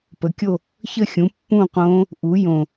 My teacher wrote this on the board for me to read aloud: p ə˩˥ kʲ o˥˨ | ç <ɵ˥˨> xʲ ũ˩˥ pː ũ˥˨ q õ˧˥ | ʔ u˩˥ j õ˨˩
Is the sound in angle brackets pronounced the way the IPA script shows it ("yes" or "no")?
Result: no